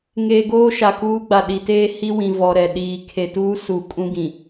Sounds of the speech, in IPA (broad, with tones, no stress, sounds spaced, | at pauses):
ŋ eː˨ ɡ oː˦ ʃ a˨ k uː˦ ɡ͡b a˨ ɗ i˨ t eː˦ h i˦ w ĩ˨ v ɔ˨ ɾ ɛ˨ ɗ iː˨ kʰ e˨ t uː˦ s u˨ kʼ ũ˦ ɡ ĩ˨